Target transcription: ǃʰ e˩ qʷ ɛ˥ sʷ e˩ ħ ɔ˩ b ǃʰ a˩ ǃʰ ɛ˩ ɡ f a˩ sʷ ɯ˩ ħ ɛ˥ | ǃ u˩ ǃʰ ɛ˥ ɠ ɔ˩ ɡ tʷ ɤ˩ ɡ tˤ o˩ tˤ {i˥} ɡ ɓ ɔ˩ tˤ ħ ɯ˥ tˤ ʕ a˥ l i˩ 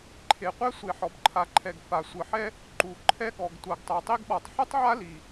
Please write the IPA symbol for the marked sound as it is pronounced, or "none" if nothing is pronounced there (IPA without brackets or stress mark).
i˥